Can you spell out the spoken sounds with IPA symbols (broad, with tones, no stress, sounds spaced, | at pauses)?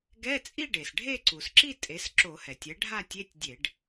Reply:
ɡ ɛ˧˥˧ t͡sʼ i˥˧ ɖ e˩ s ɖʱ e˥˧ ǀ u˩ s ǁ i˥˧ tʼ e˩˥ s ǁ o˧˩˧ h ɛ˩ tʲ ɛ˩˥ ɖʱ a˥˧ tʲ e˧˥˧ tʲ dʲ e˧˩˧ ɖ